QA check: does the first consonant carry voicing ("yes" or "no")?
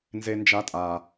yes